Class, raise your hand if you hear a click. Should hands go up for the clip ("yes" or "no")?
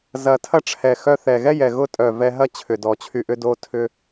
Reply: no